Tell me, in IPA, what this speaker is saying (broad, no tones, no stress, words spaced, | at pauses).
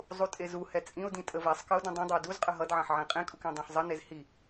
zˤutʼezuhɛ t͡sʼĩʊ̯dĩ tʼəvɛsˤkəʊ̯ dũdˤũdˤuə̯ duzqʼə ɦʌdʕɑ̃ħ ʕẽqʼẽkʼuk ẽdˤɑ̃ħzˤənez hi